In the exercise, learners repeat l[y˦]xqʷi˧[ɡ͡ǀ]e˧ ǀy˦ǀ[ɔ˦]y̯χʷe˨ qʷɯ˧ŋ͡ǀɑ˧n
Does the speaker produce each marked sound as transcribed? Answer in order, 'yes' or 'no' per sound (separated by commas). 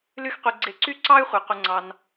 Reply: yes, yes, no